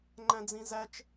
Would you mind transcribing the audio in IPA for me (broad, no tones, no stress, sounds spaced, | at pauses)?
ŋ͡ǃ æ̃ d͡z ĩ z æ t͡ʃ